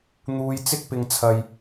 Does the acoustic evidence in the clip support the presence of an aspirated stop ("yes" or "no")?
yes